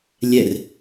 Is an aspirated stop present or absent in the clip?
absent